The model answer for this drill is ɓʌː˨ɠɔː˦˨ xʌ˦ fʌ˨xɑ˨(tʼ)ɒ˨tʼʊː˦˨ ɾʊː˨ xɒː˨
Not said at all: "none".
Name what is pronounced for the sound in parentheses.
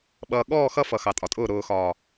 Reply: tʼ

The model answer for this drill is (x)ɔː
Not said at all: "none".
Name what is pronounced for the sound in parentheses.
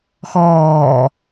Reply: x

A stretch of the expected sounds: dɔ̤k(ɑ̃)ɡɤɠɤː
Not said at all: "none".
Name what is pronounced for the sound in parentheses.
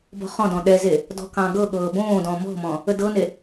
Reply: ɑ̃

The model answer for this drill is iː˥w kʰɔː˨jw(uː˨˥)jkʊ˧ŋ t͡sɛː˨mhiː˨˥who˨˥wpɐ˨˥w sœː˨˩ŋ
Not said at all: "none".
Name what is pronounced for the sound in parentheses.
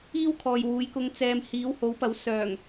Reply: uː˨˥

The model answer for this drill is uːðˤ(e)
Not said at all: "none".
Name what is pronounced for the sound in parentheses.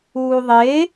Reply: e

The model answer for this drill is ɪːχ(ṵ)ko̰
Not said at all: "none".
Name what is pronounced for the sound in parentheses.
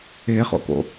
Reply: o̰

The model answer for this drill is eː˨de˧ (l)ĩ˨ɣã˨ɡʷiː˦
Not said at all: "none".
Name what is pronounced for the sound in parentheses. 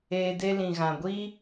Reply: l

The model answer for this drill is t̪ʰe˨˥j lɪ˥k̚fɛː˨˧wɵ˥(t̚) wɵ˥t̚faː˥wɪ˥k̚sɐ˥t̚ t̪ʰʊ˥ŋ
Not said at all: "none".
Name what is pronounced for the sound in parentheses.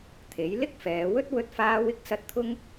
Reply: t̚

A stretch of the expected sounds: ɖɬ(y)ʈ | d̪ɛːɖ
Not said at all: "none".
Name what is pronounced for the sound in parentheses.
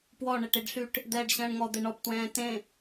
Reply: y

